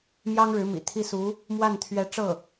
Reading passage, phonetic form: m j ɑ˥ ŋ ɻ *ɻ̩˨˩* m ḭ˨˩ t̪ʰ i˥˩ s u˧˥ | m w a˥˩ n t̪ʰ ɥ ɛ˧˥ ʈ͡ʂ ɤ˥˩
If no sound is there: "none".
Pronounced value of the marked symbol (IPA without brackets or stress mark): ɻ̩˧˥